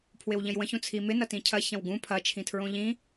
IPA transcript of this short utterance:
pʰ w ɪ w ʎ ə̃ j w ə̃ ç ũ t͡sʰ i m ɪ n ɐ t ĩ cʰ ɐ ç ɐ̃ w ɡ ũ pʰ ɐ t͡ʃʰ ĩ tʰ ɹ õ ʎ ĩ

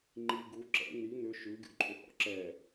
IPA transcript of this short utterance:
ŋ͡ǃ i ɡ u ǁ ɛ̰ n̪ i n̪ ʏ ʃ ʉ ɡʲ ṵ ǃʼ ʏ h ɔ̰ ǁ ɛ

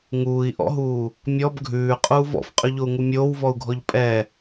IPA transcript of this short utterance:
ŋ uː i̯ ʔ ɔ̰ ɦ uː | mʲ ɔ b ɡʱ ʉː qʼ uː v ɔ̰ f qʼ ʉ ʎ o u̯ ŋ u mʲ oː w v ɔ u̯ ɡʱ ɔ ʎ pʼ ɛ

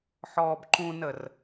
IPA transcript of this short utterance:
ħ ɔː b ǃ ũ n ə r

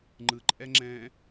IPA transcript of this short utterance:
ŋ͡ǃ ɯ ǃʼ ɛ ŋ͡ǁ ɛ̃ː

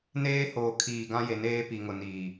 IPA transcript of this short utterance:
n eː˦ h oː˨ kʰ iː˨ ɡ ã˦ j e˨ n eː˦ p i˨ ŋ ʊ˨ n iː˨

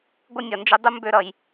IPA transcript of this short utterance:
ɡʷ ɪ˥ nʲ ʌ˨ n d͡ʒ ɪ˦ dˤ u˥ m b ø˦ ɾ ʌ˨ j

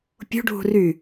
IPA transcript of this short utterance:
pʲ ṳ ɖʱ ṳ r y

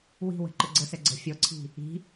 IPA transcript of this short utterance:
w i̤ w ə̤ ǃ ɪ ɡ͡ǀ ə s ɛ ɡ͡ǀ ə̤ fʲ ɔ ǀʰ i̤ | i̤

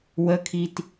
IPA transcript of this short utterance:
w ə kʰ i t

